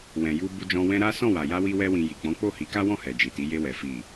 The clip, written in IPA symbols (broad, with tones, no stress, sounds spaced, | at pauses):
w ɛ̃˨ j u˧ b u˧ d͡ʒ ɔ̃˧ w ɛ̃˦ ɾ a˦ s ɔ̃˦˨ w a˨ j a˧ w i˧ w ɛ˧ w ĩ˨ j i˨ k͡p ɔ̃˨˦ k͡p o˦˨ h i˨˦ k a˦ w ɔ̃˦˨ h ɛ˨ d͡ʒ i˨ t i˨˦ j e˧ w ɛ˨ f i˨